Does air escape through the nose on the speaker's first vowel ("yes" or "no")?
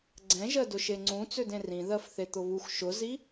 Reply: yes